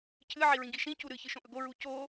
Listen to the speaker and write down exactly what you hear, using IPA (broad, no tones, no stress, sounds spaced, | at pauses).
cʰ ɨ ʕ i ɹ ĩ ɡ i ʃ ĩ c u ɾ ɨ ç ɨ ʃ õ ʔ ɵ ɡ o ɹ u c o